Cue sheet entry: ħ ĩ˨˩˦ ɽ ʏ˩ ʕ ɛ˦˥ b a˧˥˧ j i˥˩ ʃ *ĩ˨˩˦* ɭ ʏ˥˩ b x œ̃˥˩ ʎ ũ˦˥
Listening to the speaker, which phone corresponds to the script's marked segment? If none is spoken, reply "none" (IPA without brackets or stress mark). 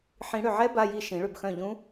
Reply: ĩ˨˩˦